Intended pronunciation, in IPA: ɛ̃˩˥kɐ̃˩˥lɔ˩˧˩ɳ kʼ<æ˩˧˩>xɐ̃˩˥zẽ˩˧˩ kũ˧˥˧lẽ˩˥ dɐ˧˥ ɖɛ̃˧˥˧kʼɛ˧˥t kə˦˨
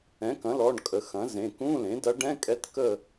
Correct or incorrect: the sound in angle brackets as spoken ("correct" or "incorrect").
incorrect